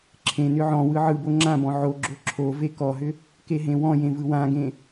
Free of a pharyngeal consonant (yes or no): no